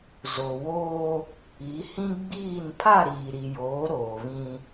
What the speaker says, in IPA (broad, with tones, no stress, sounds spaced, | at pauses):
z o˨ w oː˦ | i˨˦ h ĩ˦ ɡ͡b iː˦˨ n pʰ a˦˨ ɾ iː˨ ɾ i˨ j oː˨˦ ɾ oː˨ β ĩ˦